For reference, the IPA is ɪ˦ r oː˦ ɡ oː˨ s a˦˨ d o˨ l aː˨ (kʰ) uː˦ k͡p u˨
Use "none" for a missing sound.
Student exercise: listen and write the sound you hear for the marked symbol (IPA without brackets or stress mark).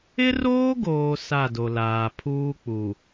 pʰ